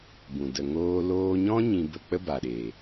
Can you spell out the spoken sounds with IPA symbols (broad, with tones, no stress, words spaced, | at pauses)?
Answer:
bũ˨ də˨ ŋoː˧ loː˧ɲɔ̃˦ ɲĩ˧bə˧k͡pə˦ ba˨ɗeː˨